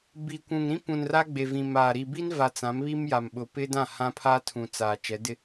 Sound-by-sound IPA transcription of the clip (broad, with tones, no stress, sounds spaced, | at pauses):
b i˨ kʷ ũ˨ ŋ ɾ ĩ˦ p ũ˨ n r a˦ ɡ͡b e˨ v ĩ˨ m aː˨ ɾ i˨ b i˦ n v a˨ t͡s ã˨˦ m β i˦ m j a˨ m ɓ ʊ˨ p ɪ˦ d ã˦˨ h ã˦ pʰ a˦ tʰ ũ˨ t͡s aː˨ t͡ʃ ɛ˨˦ d ɪ˦